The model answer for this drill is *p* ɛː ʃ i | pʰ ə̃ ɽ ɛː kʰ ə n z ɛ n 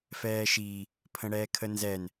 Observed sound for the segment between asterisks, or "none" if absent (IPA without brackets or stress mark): f